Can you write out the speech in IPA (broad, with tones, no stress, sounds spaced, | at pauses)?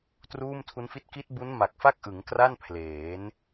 t r uː˥˩ m tʰ u˦˥ n f i˥˩ t̚ k i˦˥ t̚ b u˦˥ n m a˨˩ k̚ f a˥˩ k̚ ʔ ɯ˩˦ ŋ k r a˥˩ n pʰ l eː˩˦ n